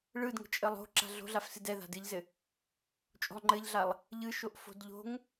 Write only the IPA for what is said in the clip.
ɭ ɯ d ŋ ə̤ t͡ʃʼ ə lˠ o̤ ǁ a̤ ɮ o̤ ɮ a f s ɨ d ɛ ð a̤ d ɨ ʎ z ɘ | t͡ʃʼ o̤ lˠ ŋ͡ǃ ɘ ʎ ɮ a lˠ | ʎ ɯ ʃ o ʔ f o̤ d ʎ o̤ ŋ

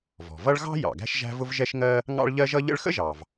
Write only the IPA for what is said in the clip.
v ɔ̤˩ v ʌ˥ ɭ ɣ ɑ̤˥ j ɑ̰˩ ɡ æ̤˥ ʃ ʒ æ̤˥ v ʊ˥ v ʒ ɛ˥ ʃ ŋ ɜ˥ | ŋ ɑ̰˥ ɭ ʎ ɜ˥ ʒ ʌ˥ ʎ ə̰˥ ɭ x ə̰˥ ʒ ɑ˩ v

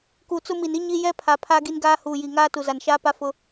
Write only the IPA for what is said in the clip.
k u˨ t͡s ʊ˦ m i˨ n i˦ ɲ i˦ j ɛ˦ pʰ a˨ pʰ a˦ ɡ i˦ n ɡ aː˦ h uː˨ j i˨ ŋ aː˦ t u˨ z a˨ n ʃ aː˦ p a˦ f ʊ˦

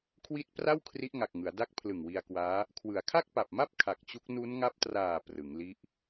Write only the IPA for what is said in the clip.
kʰ w i˦˥ t̚ p r a˥˩ w kʰ r i˦˥ ʔ ŋ a˨˩ k̚ ŋ ɯ˩˦ a̯ d a˦˥ k̚ pʰ l ɯ˨˩ ŋ w i˧ a̯ k w aː˦˥ | kʰ w ɯ˩˦ a̯ kʰ a˥˩ k̚ p a˨˩ p̚ m a˥˩ p̚ kʰ a˨˩ k̚ t͡ɕ u˦˥ k̚ n u˦˥ n ŋ a˦˥ p̚ t r aː˨˩ p r ɯ˩˦ ŋ l i˦˥ ʔ

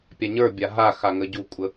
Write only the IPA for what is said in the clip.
pʲ a ɲ ə˞ bʲ a ɦ a x a ŋ ə ɟ u kʷʼ ə

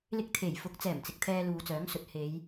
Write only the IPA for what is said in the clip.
l ɪ˧ k̚ t̪ʰ e˨˩ j f ʊ˨˥ k̚ t͡s ɛː˨˩ m t͡s ɪ˨ k̚ t̪ʰ ɛː˧ l uː˨ t͡s œː˨˥ ŋ s ɵ˨ t̚ h e˨˧ j

